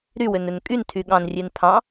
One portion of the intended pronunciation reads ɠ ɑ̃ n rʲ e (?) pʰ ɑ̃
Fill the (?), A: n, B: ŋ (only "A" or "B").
A